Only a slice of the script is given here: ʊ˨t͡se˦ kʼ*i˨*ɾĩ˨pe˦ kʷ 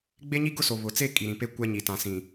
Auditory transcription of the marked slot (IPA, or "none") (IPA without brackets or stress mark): i˨